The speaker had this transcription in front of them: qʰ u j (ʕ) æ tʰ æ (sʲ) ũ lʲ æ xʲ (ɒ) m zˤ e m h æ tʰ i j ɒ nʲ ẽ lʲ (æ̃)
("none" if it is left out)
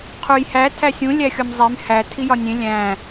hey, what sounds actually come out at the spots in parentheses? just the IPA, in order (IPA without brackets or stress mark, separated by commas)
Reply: h, sʲ, ɒ, æ̃